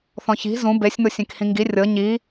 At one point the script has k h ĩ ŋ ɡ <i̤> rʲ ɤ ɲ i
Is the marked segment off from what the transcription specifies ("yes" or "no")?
yes